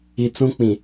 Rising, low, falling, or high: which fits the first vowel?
low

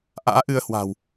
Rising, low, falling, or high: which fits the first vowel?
rising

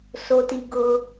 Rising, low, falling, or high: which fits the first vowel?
low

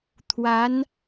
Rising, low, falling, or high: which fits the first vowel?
rising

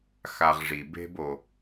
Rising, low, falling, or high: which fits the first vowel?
low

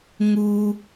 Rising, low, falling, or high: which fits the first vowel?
high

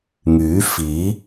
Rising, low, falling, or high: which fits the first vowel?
rising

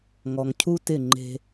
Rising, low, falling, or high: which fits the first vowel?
low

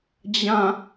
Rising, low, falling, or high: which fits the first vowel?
falling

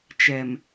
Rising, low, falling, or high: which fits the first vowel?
low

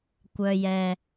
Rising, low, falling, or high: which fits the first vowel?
low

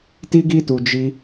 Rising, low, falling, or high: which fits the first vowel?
high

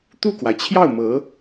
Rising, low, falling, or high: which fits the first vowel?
falling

